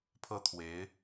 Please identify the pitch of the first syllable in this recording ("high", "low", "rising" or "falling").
high